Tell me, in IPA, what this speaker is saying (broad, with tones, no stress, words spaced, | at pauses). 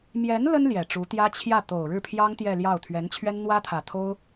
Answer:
mjɛ˧˥n lə˥n ljɛ˨˩ʈ͡ʂu˧˥ t̪jä˥t͡ɕʰjä˥˩ t̪o˨˩ʊ̯ɻɻ̩˥˩pʰjɑ˥ŋ t̪jɛ˥˧ljɑ˥˩ʊ̯ t̪ʰɥɛ˧˥nt͡ɕʰɥɛ˥n n̪wä˥t̪ʰä˨˩ t̪ʰo˥ʊ̯